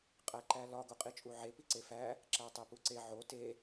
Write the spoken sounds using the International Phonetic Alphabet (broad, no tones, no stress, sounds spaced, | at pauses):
qʼ æ ǃ æ l ɒ ɡ o qʼ i t͡ʃʼ u ʕ e p i ǀ e f æ | ǁ æ tˤ e p u ǀ e ʕ o t e